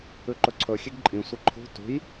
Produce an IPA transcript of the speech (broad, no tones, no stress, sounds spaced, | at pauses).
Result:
ʉ ǃ ɵ ǀʰ ɵ xʲ e ɡ ǃʼ ĩ sʷ ɨ ǃʰ ṳ t ṳ j